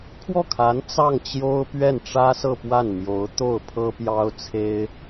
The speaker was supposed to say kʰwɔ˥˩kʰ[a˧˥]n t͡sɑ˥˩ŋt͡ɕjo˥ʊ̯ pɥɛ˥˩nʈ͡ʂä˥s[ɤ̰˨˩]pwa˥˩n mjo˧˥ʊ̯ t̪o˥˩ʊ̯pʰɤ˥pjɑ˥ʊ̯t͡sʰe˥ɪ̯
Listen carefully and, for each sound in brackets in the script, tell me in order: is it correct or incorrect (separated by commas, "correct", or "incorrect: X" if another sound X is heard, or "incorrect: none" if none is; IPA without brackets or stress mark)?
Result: correct, incorrect: ɤ˥˧